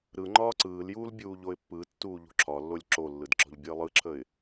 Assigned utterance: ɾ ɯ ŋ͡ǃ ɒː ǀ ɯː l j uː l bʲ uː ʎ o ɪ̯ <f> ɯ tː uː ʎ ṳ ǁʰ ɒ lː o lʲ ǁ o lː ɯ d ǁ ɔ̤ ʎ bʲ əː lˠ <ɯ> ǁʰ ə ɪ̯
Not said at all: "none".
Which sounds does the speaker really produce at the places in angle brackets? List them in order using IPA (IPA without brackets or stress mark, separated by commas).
pː, ɯ